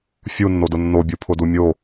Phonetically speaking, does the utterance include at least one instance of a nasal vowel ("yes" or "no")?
no